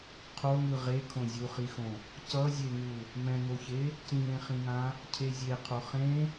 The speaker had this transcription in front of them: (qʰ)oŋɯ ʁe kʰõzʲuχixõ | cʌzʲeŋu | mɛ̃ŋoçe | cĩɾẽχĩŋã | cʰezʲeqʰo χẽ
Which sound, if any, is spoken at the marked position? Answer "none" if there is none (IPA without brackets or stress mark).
qʰ